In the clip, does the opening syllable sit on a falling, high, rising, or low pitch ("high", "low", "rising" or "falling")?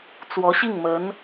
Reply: rising